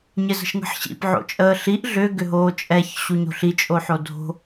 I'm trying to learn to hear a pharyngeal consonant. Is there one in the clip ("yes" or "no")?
yes